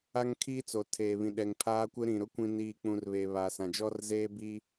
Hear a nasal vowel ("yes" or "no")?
yes